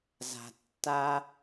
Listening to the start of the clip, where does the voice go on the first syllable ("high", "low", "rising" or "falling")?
low